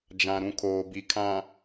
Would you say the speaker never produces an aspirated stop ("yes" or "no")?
no